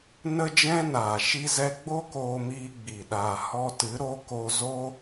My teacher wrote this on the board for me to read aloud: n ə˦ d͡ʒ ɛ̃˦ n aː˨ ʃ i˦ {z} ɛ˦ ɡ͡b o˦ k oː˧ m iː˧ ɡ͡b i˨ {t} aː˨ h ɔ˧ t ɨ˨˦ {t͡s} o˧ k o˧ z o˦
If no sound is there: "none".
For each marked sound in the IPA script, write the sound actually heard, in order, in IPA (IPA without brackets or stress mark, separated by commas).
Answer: z, ɗ, ɾ